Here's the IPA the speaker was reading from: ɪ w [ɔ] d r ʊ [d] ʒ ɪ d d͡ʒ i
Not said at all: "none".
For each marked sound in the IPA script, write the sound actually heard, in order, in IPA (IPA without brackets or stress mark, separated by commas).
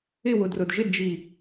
ʊ, d